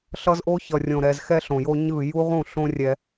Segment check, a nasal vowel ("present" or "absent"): present